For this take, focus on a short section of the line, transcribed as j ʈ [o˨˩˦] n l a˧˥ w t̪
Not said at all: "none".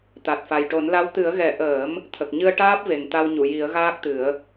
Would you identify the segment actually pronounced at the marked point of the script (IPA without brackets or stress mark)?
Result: o˨˩˦